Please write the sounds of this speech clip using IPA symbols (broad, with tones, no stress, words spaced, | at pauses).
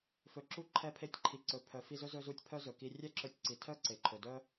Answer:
fɵ˩ǁu˧ ǃʰɛ˧pʰe˧tʲǃʰi˩ǀɵ˩ pʰœ˩fi˧zɵ˥ zɵ˧zu˧tʲ pʰœ˥zɵ˩ki˧ rʲɛ˥ǁɵ˧tʲǀi˩tʰœ˥ ǀe˩ǃʰɵ˩dœ˥